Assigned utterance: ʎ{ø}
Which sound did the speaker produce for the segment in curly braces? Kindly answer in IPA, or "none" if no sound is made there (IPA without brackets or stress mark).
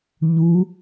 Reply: u